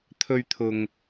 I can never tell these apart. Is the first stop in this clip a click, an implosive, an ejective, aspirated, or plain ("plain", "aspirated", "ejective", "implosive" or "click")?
aspirated